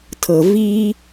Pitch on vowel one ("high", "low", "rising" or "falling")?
low